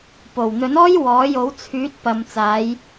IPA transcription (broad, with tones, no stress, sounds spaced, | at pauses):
p o˨˩ w n̪ ɵ˨˥ n ɔː˥ j w ɔː˨˥ j o˨˥ w t͡sʰ yː˨˥ t̚ p ɐ˨ m t͡s aː˨˧ j